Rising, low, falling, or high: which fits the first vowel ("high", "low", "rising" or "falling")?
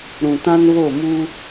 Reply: low